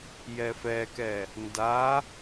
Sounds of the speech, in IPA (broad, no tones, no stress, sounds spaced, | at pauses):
j ɛ f ɛ k ɛ | n d a